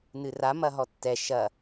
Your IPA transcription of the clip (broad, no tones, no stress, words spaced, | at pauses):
nɨra mɐɦɔtːɛ ʃɐ